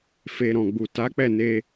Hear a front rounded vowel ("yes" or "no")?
no